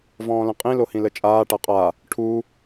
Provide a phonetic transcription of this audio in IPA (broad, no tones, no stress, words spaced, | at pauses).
vɔ̃ːlə̃qʼĩ lohĩlət͡ʃʼaː ʈaqʼa | ʈʰu